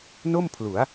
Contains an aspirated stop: yes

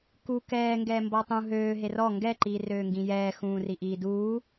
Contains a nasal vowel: yes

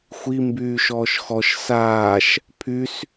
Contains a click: no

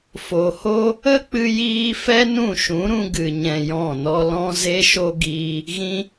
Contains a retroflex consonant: no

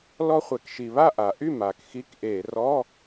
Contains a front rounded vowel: yes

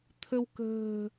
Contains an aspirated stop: yes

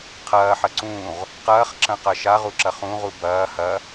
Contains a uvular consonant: yes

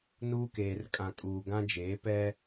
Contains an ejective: yes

